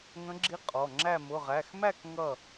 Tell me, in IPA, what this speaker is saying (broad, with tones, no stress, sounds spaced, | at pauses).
ŋ ə̃˧˥ ɡ͡ǁ i˧˥ qʼ ɔ˩˧˩ ŋ͡ǁ æ˥˨ m ʊ˩˧˩ ʁ æ˩˧˩ x m æ˥˨ k ŋ ʌ˥˨